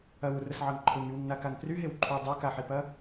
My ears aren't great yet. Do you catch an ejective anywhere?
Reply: no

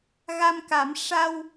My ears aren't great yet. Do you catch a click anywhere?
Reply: no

